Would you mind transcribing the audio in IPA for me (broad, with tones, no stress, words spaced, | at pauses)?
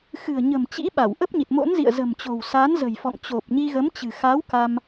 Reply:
xɨ̤˨˩ə̯ɲə̤˨˩mt͡ɕḭ˧˥ ɓa˧˩wʔə˦˥p̚ɲi˨˩t̚ mo̰˧˥nzḭ˧˨ə̯ zə̤˨˩mt͡ɕo̤˨˩w sa˨˦nzə̤˨˩jfɔ̰˧˨ŋt͡ɕo˨˩p̚ ɲi˧ɣə˨˦mt͡ɕɨ̤˨˩ xa˨˦wka˧m